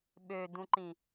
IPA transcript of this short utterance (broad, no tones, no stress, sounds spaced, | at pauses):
ɓ ø d ũ ǃ ĩ